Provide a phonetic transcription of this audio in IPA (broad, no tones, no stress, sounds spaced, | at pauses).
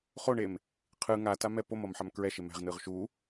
χ o ɳ e m | qʰ ɯ ŋ a t a m ɛ p o m ʌ m ħ a m k ɹ ɛ ʃ e m ɛ̤ ʁ n ɯ ʁ ʃ u